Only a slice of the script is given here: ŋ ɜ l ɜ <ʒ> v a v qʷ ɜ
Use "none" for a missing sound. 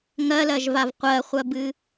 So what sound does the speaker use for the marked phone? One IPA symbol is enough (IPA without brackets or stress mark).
ʒ